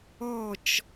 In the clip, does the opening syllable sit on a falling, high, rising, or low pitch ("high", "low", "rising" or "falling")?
falling